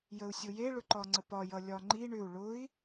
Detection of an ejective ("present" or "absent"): absent